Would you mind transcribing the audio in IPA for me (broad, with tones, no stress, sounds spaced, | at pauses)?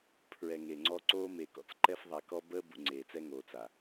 pʰ ɹ ɛ˨ ŋ e˨ ŋ͡ǀ ɔ˦ ǀ oː˦ m e˨ k ɔ̰˦ t͡s ǃ ɛ˦ f ðˤ a˨ k ɔ˦ b əː˦ b ṵ˨ ŋ͡ǀ eː˨ t͡s ɛ˦ ŋ oː˨ t͡s a˨